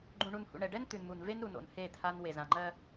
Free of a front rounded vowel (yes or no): yes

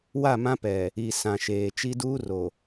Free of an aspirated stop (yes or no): yes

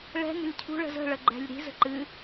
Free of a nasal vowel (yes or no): yes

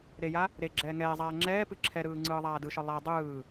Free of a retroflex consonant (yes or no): yes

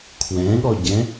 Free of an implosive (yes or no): no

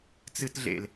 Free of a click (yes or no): yes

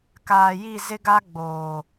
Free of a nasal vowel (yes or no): yes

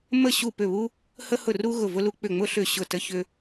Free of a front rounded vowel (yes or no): no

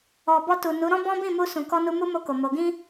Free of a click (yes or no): yes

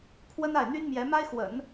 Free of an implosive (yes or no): yes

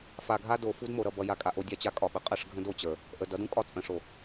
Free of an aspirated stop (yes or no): yes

